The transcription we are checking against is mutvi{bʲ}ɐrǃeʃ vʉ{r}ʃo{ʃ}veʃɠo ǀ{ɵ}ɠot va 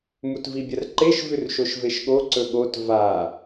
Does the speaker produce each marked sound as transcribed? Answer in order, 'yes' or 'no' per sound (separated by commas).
yes, yes, yes, yes